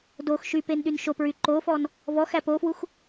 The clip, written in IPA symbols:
d o x ʃ y p e n ɗ y n ʃ o p ɹ y ǃ o f ɔ n | v ɔ x æ p o f w u x

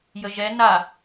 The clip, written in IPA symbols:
j ə ʒ ɛ n a

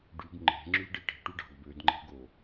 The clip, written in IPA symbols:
ɖ y ɡ ŋ͡ǃ e̤ ŋ͡ǁ y ɖ e ʈ e̤ ʈ u ɖ ɑ̤ ɡ b ø d ŋ͡ǃ e̤ ɡ o

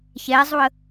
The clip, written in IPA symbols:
ç ɛ zˤ u ə̯

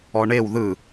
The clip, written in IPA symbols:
ɔ ɳ e w ð ɯ

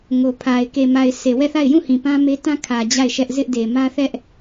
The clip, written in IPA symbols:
ŋ o˨ pʰ a˨ ɪ̯ k e˨ m a˨ ɪ̯ s e˨ w ɛ˦˨ θ a˦˨ ɪ̯ j ũ˦˨ h ĩ˨ p ã˦ m e˦ t ã˦ kʰ ä˨ d͡ʑ a˦˨ ɪ̯ ʃ ɛ˦ ʔ z ɪ˦ ʔ d e˨ m ä˦ θ ɛ˦ ʔ

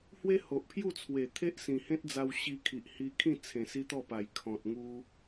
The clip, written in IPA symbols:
h w e˦ h o˨ ʔ pʰ j u˥˧ t͡sʰ w e˨˩ t̪ʰ e˦ ʔ s ĩ˨˩ h ẽ˦ t̚ d͡z a˧ w ɕ i˧ kʰ i˨ ʔ h i˧ kʰ ĩ˥˧ t͡sʰ ẽ˨˩ s i˧ t̪ ɔ˥˧ p a˨˩ j kʰ ɔ̃˨ t̚ ŋ u˧

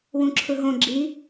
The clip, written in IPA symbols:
w ũ ǁʰ ɯ ɦ õ ɡ͡ǁ i

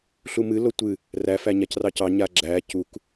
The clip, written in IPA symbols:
ɬ u m ɨ l o tʷ ɨ | r æ f æ ɲ a c r ɑ c ɑ ɲ a ɡ͡ǁ æ c u k

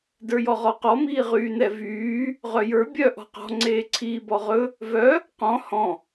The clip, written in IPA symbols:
d ə˞ j ɔ ʁ ɔ q ɔ m iː ʁ yː n ɛ v yː | ʁ œ j ə˞ bʲ œ ʔ ɔ̤ q ɔ̤ ŋ͡ǀ eː ǀʰ iː b ɔ ʁ ɵ | v œ | q ɔ̃ h ɔ̃

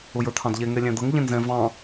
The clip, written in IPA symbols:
ʊ j ə˞ t̪ʰ ɑ̃ d ʎ ɛ ŋ ɛ lʲ æ̃ d̪ ʌ ŋ ʎ ɛ̃ n z ɛ̃ v ɑ̃

